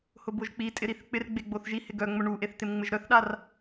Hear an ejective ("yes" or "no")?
yes